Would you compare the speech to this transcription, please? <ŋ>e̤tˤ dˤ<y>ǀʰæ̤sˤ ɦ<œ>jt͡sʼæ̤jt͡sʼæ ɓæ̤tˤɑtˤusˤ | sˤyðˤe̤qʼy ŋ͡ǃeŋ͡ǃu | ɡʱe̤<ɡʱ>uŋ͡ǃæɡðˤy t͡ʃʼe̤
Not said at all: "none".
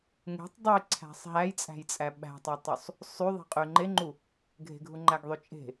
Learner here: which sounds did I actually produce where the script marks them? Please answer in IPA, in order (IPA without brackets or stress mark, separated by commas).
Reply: ŋ, e, æ, ɡʱ